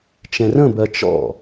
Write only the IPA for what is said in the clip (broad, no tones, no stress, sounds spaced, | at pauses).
t͡ʃ ɛ̃ r ə̃ b ɜ t͡ʃ ɔ̰